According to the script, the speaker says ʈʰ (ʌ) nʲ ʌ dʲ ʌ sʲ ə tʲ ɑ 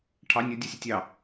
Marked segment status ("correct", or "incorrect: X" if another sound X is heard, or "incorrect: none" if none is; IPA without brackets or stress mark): incorrect: ɑ